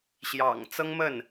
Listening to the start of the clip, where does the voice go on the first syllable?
low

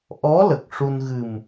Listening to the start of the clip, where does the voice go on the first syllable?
rising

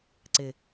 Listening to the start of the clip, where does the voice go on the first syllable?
low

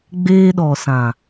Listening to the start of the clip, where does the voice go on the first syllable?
high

